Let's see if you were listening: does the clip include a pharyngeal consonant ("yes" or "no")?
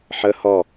yes